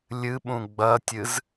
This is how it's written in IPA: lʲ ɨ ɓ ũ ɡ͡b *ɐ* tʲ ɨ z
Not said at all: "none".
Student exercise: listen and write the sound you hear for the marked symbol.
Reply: ɐ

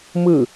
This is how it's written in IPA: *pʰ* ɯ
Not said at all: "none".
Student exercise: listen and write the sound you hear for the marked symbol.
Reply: m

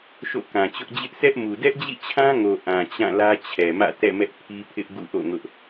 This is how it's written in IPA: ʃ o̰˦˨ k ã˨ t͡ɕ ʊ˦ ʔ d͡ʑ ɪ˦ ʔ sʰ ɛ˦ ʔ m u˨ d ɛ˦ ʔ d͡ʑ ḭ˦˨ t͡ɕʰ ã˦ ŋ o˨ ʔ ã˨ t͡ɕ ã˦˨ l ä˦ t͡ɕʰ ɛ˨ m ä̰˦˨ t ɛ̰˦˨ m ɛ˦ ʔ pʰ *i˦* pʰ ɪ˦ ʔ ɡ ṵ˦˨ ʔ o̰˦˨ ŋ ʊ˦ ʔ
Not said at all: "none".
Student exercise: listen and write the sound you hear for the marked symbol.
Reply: i˦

